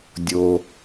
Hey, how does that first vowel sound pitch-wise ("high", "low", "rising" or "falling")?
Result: low